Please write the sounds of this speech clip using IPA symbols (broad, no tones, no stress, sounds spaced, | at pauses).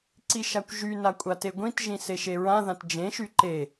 ǀ i ʃ a kʷ ʒ y n a kʷʼ a t e ɡʷ ĩ t ʒ ĩ s e ʃ e ɹ ã ð ã t d͡ʒ ẽ ʃ y ǃ e